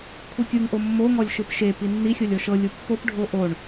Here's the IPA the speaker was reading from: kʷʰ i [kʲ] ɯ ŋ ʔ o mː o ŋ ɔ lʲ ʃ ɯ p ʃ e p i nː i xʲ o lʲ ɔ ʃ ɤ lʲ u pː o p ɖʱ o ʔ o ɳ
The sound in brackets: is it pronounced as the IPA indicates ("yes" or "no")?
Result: yes